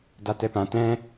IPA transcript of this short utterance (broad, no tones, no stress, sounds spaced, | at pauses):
d a t ɛ p ã t ɛ̃